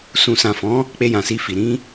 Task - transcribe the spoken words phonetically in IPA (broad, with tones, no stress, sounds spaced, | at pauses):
s ũ˨ s ã˨ f ɔ̃˨˦ | k͡p e˧ j ã˨ s i˧ f i˨ ɾ ĩ˧